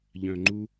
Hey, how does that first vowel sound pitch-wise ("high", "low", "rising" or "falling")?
low